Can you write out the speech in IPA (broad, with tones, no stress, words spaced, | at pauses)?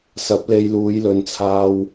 sɐ˨˥p̚le˧j luː˨˧jlɵ˨˧n t͡sʰaː˧w